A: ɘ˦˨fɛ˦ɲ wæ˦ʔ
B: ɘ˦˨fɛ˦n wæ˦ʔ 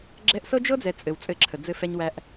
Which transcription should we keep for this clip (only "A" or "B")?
A